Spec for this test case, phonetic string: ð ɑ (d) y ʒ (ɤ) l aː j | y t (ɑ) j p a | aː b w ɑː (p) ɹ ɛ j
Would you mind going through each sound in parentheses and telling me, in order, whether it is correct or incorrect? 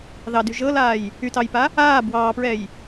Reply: correct, correct, correct, correct

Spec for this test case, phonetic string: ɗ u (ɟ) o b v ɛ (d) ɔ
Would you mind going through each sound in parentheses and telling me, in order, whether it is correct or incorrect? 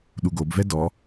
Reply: incorrect: ɡ, correct

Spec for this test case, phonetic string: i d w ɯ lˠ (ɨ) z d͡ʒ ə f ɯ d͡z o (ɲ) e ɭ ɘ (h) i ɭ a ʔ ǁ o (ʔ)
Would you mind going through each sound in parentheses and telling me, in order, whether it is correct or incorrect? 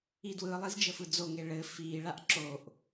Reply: incorrect: i, incorrect: ŋ, incorrect: f, correct

